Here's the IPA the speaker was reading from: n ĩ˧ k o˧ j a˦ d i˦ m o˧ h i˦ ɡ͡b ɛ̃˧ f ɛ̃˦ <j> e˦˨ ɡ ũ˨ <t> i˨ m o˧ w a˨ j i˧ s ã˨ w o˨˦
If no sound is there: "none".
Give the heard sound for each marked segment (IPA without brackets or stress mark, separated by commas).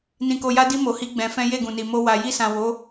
j, n